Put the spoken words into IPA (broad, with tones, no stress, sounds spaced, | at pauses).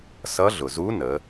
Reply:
s ʌ˧˥ ɮ ʊ˩ z u˧˥ n ə˩˧